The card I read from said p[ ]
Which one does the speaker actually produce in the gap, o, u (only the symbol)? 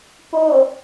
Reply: o